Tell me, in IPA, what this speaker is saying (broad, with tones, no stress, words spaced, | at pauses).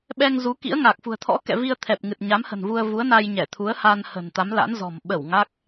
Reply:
ɓɛ˧ŋzu˨˦ kḭ˧˥ə̯ŋaː˨˩k̚fṳ˨˩ə̯ t̪ʰɔ̰˧˥kɛ̰˧˨ vi˧ə̯t̪ʰɛ˨˩p̚ ŋɨ˨˩t̚ɲa˨˦mhə̤˨˩nvu˧ə̯ vu˨˦ə̯na˧jɲɛ˧˩t̪ʰu˨˦ə̯ ha˧nhə̤˨˩nt̪a˨˦m la̰˧˥nzɔ̤˨˩m ɓə˧˩w ŋa˦˥k̚